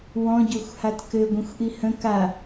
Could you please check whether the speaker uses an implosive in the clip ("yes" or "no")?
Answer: no